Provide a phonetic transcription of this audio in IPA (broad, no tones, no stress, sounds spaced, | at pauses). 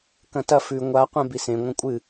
k ɐ̃ t ɐ f ʉ ŋʷ a qʷ ẽ b i s ẽ ŋʷ ɐ̃ kʷʼ ɨ